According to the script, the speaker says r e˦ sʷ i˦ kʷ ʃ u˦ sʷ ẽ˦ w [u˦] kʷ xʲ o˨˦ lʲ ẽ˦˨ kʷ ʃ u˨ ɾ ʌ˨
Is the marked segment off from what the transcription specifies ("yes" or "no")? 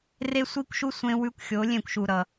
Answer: yes